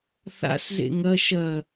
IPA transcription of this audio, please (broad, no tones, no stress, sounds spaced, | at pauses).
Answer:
θ a̰ s z ḛ ŋ ɐ ʃ ɐ